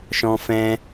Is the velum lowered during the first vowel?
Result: yes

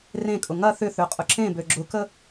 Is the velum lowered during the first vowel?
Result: yes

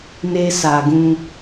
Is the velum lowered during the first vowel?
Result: no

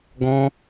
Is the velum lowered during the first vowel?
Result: yes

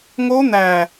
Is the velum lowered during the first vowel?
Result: no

